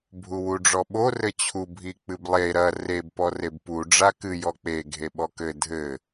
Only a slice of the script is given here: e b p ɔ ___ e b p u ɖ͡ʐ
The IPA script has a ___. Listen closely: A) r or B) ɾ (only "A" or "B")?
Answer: A